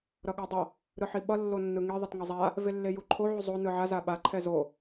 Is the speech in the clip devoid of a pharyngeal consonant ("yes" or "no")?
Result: no